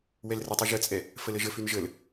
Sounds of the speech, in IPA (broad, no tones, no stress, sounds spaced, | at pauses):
w ɛ l r ə tˤ y ʒ ə t͡sʼ ɛ | f ə l ə ʒ ə f y n ʒ ə l